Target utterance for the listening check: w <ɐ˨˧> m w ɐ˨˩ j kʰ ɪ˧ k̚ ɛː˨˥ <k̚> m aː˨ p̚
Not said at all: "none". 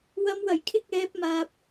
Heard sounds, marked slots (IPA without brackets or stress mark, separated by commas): ɐ˨˧, p̚